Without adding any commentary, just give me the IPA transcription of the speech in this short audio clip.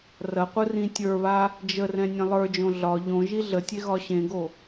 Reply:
r ɐ qʷ ɯ r ĩ tʲ ə˞ β a | d͡ʒ ə r ɛ̃ nʲ ẽ lˠ ə˞ d͡ʒ õ ɮ ɒ ʎ õ ʒ i ɮ ə tʲ e ɣ ɒ ɕ ẽ ɡ o

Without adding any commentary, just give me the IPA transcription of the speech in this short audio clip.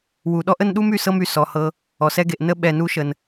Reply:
w u˨ ɗ ɔ˥ ʔ ə˦ n ɗ u˥ m y˨ s ɤ˦ m y˩ s ɔ˩ h ɤ˨ | ɔ˩ s ɛ˦ ɡ e˨ ʔ n ə˦ ɓ ɛ˨ n u˦ ʃ ə˩ n

